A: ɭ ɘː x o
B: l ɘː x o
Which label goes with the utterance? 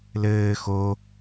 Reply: B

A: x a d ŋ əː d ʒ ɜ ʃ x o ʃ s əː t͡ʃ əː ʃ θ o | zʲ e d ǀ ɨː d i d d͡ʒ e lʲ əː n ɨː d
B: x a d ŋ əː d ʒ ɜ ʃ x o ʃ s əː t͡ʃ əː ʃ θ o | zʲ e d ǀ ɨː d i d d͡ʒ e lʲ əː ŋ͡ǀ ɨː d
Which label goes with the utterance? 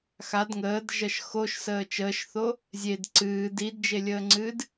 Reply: B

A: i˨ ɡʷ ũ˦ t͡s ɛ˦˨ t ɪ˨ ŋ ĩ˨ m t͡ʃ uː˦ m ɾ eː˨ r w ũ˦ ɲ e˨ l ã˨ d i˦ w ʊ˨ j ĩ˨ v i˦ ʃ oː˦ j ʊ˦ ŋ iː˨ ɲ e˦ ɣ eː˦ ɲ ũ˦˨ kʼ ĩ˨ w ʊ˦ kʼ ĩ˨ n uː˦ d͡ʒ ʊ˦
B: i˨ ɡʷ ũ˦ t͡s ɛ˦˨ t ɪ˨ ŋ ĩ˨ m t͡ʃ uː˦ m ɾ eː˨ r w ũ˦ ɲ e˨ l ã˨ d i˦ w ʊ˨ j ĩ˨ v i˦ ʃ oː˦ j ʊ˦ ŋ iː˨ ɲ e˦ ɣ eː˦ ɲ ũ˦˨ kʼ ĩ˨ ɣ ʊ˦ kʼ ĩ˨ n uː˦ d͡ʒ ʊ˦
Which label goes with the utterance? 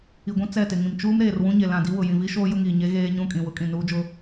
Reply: A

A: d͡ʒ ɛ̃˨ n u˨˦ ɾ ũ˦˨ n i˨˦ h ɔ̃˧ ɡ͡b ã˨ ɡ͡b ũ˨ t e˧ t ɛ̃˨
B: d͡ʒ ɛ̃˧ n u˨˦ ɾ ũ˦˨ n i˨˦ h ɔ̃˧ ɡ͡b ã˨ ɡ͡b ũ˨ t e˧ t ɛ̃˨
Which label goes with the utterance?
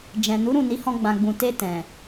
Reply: A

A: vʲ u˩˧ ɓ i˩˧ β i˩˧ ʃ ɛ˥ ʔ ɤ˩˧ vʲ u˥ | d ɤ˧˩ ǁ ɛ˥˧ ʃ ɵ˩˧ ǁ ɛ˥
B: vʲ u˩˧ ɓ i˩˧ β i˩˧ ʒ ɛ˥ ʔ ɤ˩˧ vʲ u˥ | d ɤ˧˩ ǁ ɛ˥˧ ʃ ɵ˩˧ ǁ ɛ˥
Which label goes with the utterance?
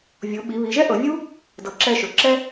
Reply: B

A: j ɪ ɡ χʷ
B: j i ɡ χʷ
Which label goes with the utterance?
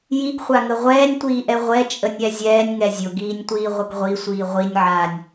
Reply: B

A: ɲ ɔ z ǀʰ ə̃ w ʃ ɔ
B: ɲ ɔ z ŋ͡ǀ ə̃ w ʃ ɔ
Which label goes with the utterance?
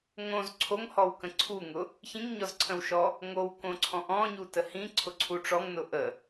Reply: A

